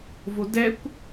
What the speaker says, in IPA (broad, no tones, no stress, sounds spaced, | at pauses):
v o d ɛ kʷ